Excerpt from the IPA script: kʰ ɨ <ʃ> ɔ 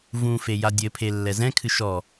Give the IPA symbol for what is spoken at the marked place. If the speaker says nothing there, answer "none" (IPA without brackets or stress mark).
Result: ʃ